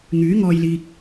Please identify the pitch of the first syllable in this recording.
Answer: rising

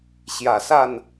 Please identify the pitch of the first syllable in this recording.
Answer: low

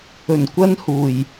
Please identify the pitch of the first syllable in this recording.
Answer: low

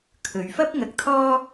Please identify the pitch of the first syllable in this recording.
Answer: low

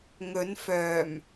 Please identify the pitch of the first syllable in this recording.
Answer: rising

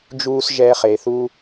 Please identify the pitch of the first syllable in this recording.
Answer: high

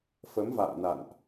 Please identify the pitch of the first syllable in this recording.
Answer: rising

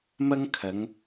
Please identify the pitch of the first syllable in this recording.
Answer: high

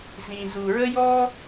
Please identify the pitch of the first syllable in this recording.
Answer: low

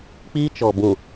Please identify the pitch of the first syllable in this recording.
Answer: high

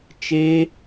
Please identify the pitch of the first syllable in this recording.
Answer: high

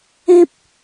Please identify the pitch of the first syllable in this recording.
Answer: high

